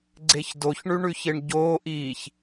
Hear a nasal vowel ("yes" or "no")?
no